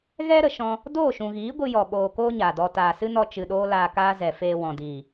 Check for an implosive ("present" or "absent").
present